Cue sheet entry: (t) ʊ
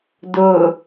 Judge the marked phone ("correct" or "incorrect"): incorrect